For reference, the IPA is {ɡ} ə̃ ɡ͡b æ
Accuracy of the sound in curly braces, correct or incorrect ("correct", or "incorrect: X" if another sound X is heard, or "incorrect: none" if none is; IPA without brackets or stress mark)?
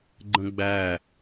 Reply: incorrect: ɡ͡ǃ